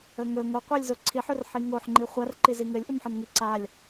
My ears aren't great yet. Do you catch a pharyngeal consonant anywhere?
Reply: yes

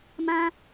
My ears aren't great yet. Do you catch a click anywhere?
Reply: no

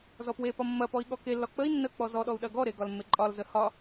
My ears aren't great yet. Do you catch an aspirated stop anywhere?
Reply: no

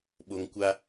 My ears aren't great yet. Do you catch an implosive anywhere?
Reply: yes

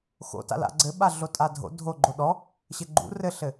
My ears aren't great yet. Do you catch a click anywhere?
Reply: yes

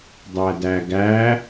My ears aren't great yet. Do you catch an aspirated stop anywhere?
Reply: no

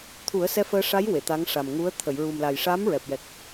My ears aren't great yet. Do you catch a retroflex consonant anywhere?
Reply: yes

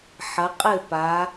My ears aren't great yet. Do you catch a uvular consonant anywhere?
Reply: yes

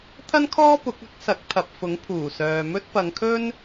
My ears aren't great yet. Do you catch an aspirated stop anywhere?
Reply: yes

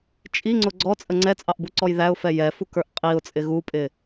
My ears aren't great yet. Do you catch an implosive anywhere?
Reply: no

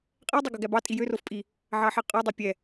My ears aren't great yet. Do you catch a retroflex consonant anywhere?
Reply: no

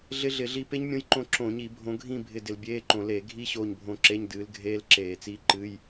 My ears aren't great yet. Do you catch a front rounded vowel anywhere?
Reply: no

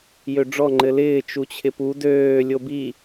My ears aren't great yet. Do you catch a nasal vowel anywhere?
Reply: no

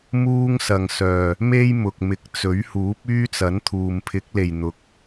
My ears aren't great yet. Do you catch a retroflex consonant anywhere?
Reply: no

